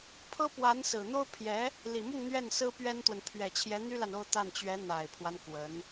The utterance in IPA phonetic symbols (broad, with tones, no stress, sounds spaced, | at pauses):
pʰ ɤ˥ p w a˧˥ n s ɹ̩˨˩ n̪ o˥ ʊ̯ pʰ j ɛ˧˥ | l i˨˩ m ʊ˥˧ ŋ n̪ ɥ ɛ˥˩ n s ɹ̩˥ p ɥ ɛ˥ n t̪ w ə˨ n pʰ ɥ ɛ˨˩ t͡ɕʰ j ɛ˧˥ n̪ y˥ l a˨ n o˥˧ ʊ̯ t̪ a˥˩ n t͡ɕ ɥ ɛ˧˥ n̪ a˨˩ ɪ̯ pʰ w a˦ n k w ə˧˥ n